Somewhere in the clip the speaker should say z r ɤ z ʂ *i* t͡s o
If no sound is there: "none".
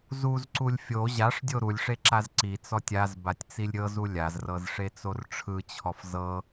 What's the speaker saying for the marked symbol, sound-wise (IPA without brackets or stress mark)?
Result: e